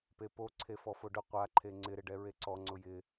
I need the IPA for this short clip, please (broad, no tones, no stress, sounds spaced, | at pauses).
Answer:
p e p o ǀʰ e f ɔ f o ɖ ʊ qʷ a ǃʰ e ŋ͡ǀ ɪ ɾ ɪ ɖ ɛ ɹ e ǀ ɔ ŋ͡ǀ ʊ j ɪ